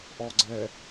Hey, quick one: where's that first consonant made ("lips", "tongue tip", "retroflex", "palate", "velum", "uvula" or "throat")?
throat